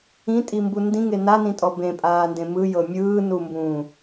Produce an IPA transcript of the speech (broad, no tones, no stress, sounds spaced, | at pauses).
ĩ tʼ i m b u n d ĩ ŋ e n a n ĩ tʼ ɔ b ẽ pʼ aː n d ẽ m ɯ j ɤ mʲ ɯː n u m b ũː